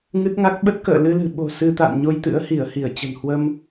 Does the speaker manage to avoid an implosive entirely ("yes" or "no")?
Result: no